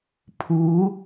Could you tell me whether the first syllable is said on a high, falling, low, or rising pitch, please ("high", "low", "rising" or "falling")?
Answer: rising